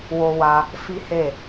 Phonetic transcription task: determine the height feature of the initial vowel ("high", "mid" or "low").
mid